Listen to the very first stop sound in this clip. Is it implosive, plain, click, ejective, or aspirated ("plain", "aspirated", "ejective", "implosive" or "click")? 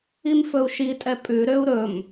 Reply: ejective